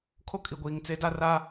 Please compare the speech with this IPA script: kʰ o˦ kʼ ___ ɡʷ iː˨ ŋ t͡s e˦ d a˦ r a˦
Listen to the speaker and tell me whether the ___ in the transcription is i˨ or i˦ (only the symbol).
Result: i˨